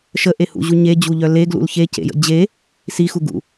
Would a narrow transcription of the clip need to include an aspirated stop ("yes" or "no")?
no